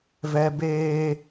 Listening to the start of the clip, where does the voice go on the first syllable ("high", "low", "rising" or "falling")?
high